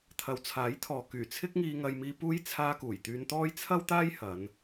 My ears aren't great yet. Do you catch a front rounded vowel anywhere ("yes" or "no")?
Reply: yes